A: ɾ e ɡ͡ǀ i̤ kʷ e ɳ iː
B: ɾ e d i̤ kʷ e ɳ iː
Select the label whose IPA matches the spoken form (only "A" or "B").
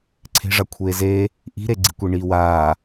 A